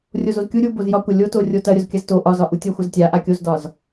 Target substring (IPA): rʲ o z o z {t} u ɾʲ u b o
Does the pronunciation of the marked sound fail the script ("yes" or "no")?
yes